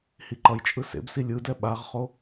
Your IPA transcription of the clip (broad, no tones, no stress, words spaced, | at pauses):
hiǃʌjt͡ʃʼɯ sḛbsi lʲɯdɛ ɓaʁχo